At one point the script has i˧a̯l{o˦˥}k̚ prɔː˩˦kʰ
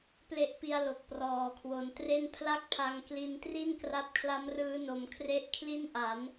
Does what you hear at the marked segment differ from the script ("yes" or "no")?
yes